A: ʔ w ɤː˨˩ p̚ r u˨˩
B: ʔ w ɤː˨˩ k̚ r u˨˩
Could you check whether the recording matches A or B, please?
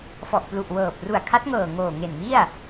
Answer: A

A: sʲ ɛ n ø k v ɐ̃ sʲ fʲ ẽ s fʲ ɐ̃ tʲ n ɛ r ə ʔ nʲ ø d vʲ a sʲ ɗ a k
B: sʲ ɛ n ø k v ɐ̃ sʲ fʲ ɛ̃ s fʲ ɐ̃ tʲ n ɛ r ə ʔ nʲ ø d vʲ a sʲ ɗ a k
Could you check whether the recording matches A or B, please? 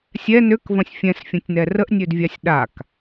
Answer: B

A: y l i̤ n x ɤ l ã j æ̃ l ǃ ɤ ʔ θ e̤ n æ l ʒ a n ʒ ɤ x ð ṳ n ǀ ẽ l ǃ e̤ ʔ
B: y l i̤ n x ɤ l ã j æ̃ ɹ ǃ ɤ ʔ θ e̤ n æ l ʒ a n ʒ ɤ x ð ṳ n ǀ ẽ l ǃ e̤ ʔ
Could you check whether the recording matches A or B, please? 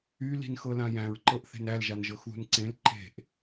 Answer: B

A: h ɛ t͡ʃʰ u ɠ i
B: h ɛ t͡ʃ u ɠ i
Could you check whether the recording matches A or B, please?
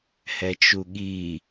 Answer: B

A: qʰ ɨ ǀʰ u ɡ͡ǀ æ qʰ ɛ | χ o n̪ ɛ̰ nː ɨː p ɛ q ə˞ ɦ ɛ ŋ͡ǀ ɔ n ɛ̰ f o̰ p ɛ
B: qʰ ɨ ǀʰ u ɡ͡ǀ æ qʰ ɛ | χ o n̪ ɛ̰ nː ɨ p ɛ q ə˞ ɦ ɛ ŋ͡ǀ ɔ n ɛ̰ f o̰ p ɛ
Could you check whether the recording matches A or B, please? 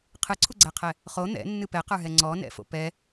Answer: B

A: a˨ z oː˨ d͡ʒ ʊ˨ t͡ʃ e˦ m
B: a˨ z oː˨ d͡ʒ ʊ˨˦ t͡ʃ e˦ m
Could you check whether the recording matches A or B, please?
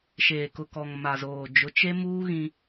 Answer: B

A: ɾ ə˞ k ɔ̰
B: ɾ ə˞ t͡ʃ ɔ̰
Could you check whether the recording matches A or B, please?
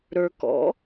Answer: A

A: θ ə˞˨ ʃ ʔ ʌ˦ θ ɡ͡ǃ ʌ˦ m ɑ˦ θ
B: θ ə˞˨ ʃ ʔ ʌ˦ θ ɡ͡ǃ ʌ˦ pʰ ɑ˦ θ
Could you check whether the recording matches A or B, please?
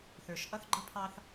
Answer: B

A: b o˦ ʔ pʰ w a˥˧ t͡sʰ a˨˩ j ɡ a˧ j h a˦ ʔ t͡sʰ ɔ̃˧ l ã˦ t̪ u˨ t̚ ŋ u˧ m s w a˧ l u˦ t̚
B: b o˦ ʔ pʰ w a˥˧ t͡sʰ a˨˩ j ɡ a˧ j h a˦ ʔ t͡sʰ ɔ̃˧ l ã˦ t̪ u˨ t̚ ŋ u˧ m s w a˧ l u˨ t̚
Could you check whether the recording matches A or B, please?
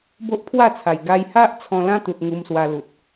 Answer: B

